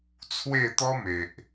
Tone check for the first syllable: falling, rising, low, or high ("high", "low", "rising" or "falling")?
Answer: falling